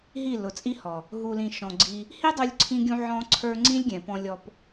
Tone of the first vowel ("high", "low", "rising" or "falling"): falling